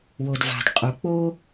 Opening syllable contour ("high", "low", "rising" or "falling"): low